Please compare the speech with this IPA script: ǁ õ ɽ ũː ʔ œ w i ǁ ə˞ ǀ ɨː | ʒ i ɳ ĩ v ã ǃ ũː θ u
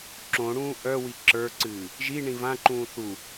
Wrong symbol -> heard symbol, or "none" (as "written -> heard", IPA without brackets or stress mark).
none